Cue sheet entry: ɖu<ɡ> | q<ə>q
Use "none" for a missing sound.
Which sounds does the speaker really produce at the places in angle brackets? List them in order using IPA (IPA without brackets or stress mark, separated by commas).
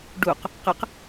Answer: q, ə